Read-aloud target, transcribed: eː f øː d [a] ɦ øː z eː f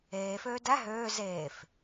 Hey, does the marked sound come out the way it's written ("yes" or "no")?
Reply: no